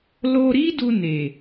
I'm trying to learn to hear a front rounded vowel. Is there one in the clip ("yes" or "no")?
no